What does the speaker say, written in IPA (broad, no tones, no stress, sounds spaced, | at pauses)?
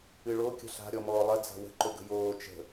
ɨ ɭ o kʲ ə̤ ɬ a̤ ɾʲ ɔ m ɔː lˠ ɐ d͡z a̤ w ə̤ ǃ ɵ ɡ ə̤ j oː t͡ʃ ə̤